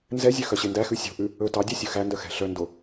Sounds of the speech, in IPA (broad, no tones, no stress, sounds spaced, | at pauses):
n z ɛ zʲ ø x œ ɕ e n d æ x ʉ sʲ o̤ ʔ ʉ | ɵ t ɑ dʲ ɑ sʲ ɵ x æ n d œ x ɛ̤ ɬ œ n d o